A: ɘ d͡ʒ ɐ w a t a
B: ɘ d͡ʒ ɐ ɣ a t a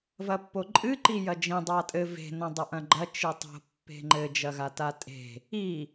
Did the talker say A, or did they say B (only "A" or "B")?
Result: B